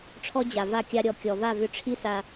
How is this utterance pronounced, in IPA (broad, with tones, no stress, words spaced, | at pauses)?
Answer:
ʈ͡ʂʰɔ˦d͡ʑa˨ va˦˨ kʲa˧ɾʲɔ˨ kʲɔ˨va˦˨vʏ˧ ʈ͡ʂʰi˦sa˧